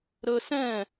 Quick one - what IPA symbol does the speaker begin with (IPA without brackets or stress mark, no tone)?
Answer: ɾ